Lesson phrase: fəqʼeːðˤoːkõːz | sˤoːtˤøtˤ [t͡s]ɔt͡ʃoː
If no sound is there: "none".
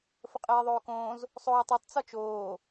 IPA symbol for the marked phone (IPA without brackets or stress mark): t͡s